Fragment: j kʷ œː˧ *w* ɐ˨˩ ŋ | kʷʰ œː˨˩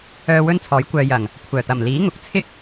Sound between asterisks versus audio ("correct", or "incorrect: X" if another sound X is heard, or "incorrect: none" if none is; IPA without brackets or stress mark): incorrect: j